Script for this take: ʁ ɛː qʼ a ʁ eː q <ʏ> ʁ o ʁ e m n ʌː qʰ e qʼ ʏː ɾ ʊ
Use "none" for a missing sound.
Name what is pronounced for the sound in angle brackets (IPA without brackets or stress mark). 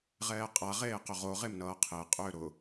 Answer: ʏ